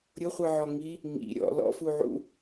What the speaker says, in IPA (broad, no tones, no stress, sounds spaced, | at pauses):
ɾʲ ʊ χʷ ɯ ʕ ɔ ŋ i | ŋ ḭ ɾʲ ɔ̰ l ɔ̰ f u ʕ ṵ